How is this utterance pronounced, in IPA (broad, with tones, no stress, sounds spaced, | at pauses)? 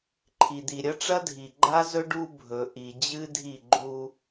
ǃʰ i˨ d̪ i˨ ɾʲ ɐ˦ ʈ͡ʂ ɐ˦ dʱ i˨ ɡ͡ǃ a˦ z ɵ˦ ɖ u˦ bʱ ɵ˨ ʔ i˨ d͡ʑ ɨ˦ dʱ i˦˨ ɡ͡ǃ u˦